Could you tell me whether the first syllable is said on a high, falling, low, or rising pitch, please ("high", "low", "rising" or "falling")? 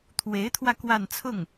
rising